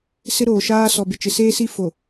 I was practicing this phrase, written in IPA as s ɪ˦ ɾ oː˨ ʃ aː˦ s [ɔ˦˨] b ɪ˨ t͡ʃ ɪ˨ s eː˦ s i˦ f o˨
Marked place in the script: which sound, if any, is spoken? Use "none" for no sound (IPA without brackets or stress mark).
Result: ɔ˨